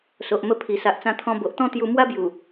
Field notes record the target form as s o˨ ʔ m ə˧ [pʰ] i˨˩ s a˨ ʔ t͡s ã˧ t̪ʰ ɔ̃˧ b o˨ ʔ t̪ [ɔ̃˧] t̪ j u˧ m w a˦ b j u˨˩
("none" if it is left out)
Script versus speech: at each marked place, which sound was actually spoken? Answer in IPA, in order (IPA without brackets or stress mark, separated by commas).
pʰ, ɔ̃˥˧